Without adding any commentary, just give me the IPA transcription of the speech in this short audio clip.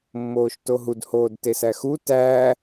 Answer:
mː oː ʃ t o ɦ u d h oː d t e s æ x u t æː

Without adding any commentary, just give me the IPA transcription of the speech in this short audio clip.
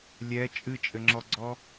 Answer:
lʲ ɛ t͡ʃʼ ɨ t͡ʃʼ ɘ ŋ͡ǁ ɔ ɡ͡ǀ ɔ

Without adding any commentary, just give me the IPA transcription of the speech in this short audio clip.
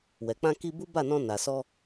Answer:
w ɛ˨ k͡p ã˧ k i˧ b u˦ b a˦˨ n ɔ̃˧ n a˨ s ɔ˧

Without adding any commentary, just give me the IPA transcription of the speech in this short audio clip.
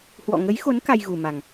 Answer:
h w ɔ̰˧˨ ŋ ə˨˦ j x o˨˦ n k a˧ j ɣ u˨˩ m a˨˩ ŋ

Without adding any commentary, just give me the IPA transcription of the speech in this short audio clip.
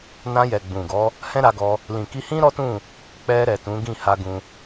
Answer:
n ã˧ j ɛ˨ ɡ͡b ũ˨ ɡ ɔ˨˦ | h ɛ̃˦ ɾ a˧ ɡ ɔ˧ | l ĩ˨ k i˧ h ĩ˦ ɾ ɔ˦ t ũ˦˨ | k͡p ɛ˧ ɾ ɛ˨ t ũ˨˦ ɡ ĩ˦˨ h a˧ ɡ ũ˧

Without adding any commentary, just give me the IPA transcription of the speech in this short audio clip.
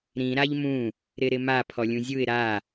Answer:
ɾ ĩ ɾ a ʎ m ũ | ɾ ɪ ɾ ɪ m a pʰ ɔ lʲ ũ zʲ u ɪ̯ ɾ a

